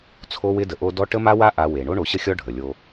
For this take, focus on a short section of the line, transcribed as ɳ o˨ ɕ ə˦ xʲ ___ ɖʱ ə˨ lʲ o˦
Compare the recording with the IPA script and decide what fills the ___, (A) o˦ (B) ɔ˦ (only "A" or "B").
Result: B